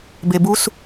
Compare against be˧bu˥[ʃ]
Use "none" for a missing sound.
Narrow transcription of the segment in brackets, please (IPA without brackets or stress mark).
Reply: s